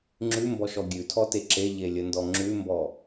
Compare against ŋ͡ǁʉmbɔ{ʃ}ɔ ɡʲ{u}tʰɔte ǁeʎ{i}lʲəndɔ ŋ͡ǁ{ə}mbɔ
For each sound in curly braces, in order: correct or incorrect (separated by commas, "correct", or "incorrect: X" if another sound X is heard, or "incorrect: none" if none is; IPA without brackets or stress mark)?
correct, incorrect: ʉ, incorrect: e, incorrect: ʉ